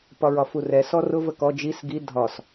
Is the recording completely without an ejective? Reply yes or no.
yes